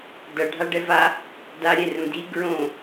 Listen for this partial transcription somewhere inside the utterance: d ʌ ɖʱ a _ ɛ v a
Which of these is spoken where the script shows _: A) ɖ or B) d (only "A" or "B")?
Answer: A